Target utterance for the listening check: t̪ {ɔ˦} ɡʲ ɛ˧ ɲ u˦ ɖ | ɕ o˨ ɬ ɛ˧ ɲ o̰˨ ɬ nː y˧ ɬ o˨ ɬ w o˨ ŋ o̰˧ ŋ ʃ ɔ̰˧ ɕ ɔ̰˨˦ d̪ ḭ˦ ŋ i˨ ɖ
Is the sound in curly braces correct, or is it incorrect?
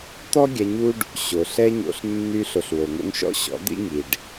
correct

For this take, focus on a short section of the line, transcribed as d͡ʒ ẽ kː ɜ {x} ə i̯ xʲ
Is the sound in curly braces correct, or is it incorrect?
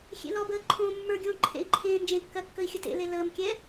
incorrect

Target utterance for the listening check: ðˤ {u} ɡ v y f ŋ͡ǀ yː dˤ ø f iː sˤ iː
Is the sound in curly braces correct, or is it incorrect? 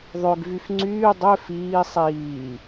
incorrect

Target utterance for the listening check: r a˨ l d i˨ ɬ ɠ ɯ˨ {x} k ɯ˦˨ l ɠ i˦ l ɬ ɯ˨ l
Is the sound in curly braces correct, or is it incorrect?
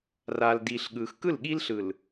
correct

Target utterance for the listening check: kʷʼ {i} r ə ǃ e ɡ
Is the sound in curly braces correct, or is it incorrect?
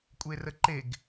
incorrect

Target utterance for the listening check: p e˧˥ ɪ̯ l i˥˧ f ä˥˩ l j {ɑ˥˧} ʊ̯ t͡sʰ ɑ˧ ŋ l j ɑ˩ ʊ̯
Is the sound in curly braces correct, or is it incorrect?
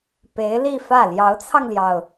incorrect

